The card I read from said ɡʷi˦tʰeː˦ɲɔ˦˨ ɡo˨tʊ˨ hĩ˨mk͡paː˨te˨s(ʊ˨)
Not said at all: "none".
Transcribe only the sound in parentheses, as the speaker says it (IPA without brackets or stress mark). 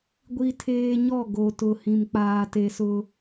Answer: ʊ˦